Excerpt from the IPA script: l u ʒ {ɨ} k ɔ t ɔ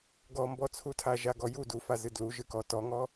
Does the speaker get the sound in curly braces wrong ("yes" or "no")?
no